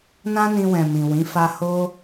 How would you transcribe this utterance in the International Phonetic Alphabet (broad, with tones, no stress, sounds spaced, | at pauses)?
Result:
n ã˦ n ĩ˧ w ɛ̃˨ m ĩ˨ w ĩ˨˦ f a˧ h o˦